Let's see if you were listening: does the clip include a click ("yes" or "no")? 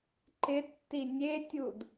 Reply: yes